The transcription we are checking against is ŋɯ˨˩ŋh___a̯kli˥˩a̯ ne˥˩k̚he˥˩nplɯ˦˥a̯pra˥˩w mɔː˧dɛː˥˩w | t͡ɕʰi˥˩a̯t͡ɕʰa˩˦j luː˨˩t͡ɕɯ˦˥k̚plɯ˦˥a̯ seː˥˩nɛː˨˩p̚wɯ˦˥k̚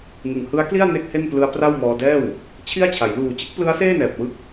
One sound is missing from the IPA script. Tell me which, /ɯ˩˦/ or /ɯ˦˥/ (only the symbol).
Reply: ɯ˦˥